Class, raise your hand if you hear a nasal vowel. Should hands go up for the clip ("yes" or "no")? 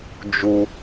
no